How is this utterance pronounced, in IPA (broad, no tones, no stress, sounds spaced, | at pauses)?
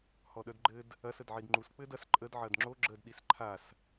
h ɔ ɗ œ d ɡ͡ǃ ɘ d | ɐ s ə d ʕ i d ŋ͡ǃ u s k͡p ɘ d ɐ s ǃʼ ə d ʕ ɐ d ŋ͡ǁ o ɡ͡ǁ ə d ɗ i s ǃʰ a s